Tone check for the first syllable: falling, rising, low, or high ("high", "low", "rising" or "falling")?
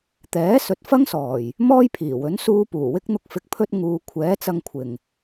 rising